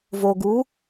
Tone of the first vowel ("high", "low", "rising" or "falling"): low